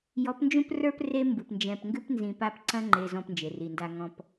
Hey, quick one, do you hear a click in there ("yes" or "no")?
yes